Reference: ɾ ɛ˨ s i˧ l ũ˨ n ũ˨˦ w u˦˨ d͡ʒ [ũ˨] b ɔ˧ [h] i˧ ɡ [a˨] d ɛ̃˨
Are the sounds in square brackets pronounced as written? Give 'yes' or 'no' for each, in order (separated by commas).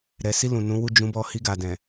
no, yes, yes